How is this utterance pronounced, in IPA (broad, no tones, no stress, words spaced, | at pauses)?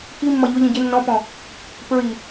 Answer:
kimːʌ ʎʊʎĩ ɟɪ nːɔ̃pɔ̃ | pɹi